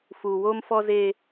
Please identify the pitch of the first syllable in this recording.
low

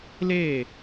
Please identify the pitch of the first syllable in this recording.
falling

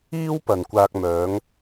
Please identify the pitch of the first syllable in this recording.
high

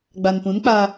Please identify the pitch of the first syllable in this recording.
low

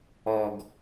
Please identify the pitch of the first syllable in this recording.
low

